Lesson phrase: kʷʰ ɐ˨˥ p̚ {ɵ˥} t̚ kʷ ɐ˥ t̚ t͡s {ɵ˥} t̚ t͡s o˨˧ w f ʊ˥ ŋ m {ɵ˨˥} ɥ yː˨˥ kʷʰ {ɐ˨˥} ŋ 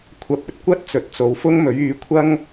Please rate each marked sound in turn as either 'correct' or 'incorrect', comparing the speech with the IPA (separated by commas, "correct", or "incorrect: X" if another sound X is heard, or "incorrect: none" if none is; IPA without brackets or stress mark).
incorrect: ɵ˧, incorrect: ɵ˨, correct, incorrect: ɐ˥